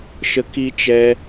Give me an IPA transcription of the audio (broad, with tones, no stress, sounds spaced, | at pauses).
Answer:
ʃ ə˦ k i˦ t͡ʃ ɛ˦